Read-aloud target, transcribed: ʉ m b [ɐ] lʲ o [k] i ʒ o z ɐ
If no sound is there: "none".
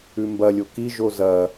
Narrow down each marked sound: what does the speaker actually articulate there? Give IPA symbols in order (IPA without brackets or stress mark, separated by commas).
ɐ, k